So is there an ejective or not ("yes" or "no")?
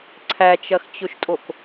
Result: yes